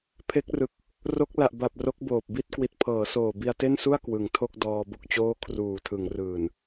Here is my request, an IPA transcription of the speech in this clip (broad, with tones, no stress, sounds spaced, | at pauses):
pʰ e˦˥ k̚ r ɯ˨˩ k̚ | r o˦˥ k̚ l a˨˩ ʔ b a˨˩ p̚ r o˦˥ k̚ b oː˨˩ p̚ b i˥˩ t̚ k w i˨˩ t̚ pʰ ɤː˩˦ s oː˨˩ b i˧ a̯ t e˥˩ n s u˥˩ a̯ k w ɯ˨˩ ŋ tʰ o˥˩ k̚ d ɔː˧ b o˥˩ k̚ t͡ɕ oː˥˩ kʰ r uː˨˩ tʰ ɯ˩˦ ŋ r ɯː˨˩ n